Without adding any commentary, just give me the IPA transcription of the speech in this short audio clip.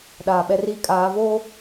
ɗ aː˨ ɓ ɛ˦ r iː˦ kʼ aː˨˦ v oː˦

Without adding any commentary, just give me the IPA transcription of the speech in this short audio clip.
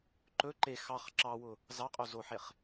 ǃ ɵ ǃ e x ɑ χ ǁ ɑ w ʊ | z ɑ qʼ o z o ħ e χ

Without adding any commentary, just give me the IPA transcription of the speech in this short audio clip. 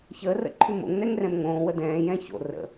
ç əː r ə̰ ǃʰ ʉ m o̰ ŋ n ɛ ŋ r ɛ̃ m ŋ õː w ə d ɛ̃ː j ɛ̃ ç o̰ r ə̰

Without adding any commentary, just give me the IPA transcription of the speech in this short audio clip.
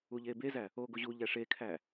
u ʎ e b e z æ | o ɡ o ʑ u ʎ æ ʂ e kʰ æ

